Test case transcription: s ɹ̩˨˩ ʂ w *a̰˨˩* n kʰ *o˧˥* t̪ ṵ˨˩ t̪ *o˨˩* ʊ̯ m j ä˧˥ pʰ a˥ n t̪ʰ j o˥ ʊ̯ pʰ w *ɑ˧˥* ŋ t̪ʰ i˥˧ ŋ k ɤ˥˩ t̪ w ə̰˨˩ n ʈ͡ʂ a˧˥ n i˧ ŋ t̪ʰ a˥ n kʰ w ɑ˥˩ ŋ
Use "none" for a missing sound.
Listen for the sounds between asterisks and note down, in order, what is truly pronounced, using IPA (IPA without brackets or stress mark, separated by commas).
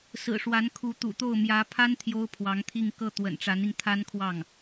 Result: a˧˥, u˧˥, o˥˩, ɑ˧˥